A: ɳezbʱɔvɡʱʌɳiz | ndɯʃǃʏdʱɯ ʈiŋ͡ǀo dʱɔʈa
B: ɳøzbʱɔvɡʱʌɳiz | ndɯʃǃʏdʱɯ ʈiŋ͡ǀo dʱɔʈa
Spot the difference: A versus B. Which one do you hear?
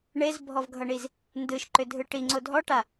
A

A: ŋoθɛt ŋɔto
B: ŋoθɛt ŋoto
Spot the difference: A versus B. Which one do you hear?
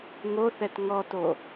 A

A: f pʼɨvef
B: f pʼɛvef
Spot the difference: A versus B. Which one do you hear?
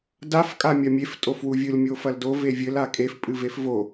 A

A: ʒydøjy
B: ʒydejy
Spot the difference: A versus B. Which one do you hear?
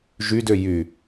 A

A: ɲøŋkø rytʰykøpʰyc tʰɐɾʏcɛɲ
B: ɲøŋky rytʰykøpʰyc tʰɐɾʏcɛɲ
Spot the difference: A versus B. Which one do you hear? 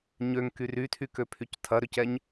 B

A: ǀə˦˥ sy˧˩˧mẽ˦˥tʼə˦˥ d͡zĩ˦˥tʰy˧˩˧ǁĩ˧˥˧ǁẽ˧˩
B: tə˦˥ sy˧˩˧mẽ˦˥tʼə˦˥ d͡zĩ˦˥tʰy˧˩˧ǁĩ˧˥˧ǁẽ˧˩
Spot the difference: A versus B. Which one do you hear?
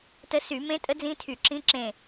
B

